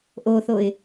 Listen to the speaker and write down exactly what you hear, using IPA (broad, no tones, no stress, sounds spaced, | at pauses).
ʔ o θ o ɪ̯